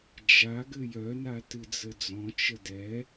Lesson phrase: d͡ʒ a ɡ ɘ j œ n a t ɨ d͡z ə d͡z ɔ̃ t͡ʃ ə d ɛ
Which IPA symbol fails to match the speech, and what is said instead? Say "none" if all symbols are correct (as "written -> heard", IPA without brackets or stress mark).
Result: none